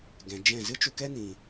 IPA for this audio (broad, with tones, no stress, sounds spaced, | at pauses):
ɡ ɛ̃˨ d͡ʒ ɛ̃˦˨ z ɨ˦ t͡ʃ u˧ k ɛ˦ n ĩ˨